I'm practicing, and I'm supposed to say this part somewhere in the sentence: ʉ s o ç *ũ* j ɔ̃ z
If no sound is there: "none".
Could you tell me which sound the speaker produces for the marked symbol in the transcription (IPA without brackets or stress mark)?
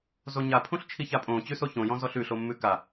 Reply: õ